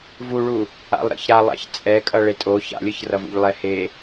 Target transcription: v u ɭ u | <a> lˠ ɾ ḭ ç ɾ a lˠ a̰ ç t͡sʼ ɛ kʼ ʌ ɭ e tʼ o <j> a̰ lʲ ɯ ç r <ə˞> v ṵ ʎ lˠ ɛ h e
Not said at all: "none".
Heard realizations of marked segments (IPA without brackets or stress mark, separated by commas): a̰, ç, ʌ